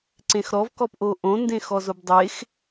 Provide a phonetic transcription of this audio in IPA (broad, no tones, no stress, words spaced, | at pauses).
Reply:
ǀẽxɾɔv kɔpʔoʔõ ndẽxɔzobdˤex